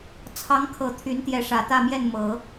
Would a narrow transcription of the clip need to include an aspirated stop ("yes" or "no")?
yes